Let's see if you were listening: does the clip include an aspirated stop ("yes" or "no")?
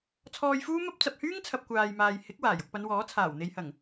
yes